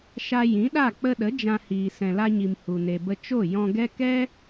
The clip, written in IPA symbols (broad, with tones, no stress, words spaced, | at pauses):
ʃa˧ jĩ˨˦ɗa˦˨ k͡pə˧ɗə˨˦ d͡ʒã˧hiː˨ sɛ̃˨la˧ɲi˨m hu˨ne˨bə˧ t͡ʃo˦˨ jɔ̃˧ɡɛ˦ kɛ˦